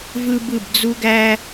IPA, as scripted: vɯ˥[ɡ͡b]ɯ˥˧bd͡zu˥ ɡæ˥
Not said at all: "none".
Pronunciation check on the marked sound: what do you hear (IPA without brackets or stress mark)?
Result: b